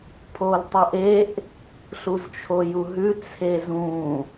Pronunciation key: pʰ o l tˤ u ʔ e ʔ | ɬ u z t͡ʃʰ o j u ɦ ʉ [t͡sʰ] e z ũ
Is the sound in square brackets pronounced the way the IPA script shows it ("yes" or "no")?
yes